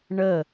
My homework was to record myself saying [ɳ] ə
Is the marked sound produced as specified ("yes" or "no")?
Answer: yes